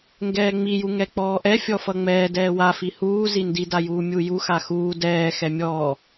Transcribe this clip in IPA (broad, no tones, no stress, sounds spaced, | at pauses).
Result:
ŋ ɡ ɛː ŋ͡m i j u ŋ ɛ k͡p ɔː ʔ ɛ fʲ ɔ f ʌ ŋ͡m ɛː d ɛː w a f i h uː z i n d i d a j uː mʲ u j u x a x uː d ɛː x ɛ mʲ ɔː